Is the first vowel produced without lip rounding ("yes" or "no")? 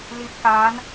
yes